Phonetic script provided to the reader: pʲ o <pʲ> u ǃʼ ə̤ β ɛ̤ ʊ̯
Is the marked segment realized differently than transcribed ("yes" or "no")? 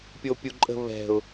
no